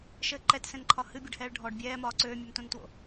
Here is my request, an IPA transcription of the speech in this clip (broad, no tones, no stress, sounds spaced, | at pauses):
ʃ ɘ ǃ ɛ t s ɛ̃ n ǃʰ ɒ h ɨ bʲ ɨ ɖ h ɛː ɭ ɖʱ ɔ ɖ bʲ ɛː m ɒː ǀ øː mʲ ø m t õ n t w o̰